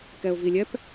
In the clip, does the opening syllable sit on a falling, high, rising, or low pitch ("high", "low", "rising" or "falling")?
low